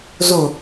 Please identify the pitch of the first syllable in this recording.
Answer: low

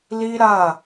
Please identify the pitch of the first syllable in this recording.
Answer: high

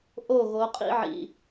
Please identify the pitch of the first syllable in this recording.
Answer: falling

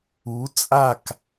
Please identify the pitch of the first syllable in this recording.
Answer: rising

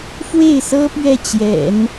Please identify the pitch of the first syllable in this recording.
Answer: falling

